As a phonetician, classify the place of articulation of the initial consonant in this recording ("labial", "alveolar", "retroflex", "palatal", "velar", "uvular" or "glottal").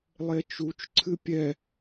alveolar